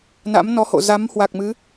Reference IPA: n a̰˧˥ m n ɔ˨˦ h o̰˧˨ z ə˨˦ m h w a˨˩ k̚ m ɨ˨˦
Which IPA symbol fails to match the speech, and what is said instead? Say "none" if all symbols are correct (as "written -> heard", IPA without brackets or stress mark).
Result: ə˨˦ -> a˨˦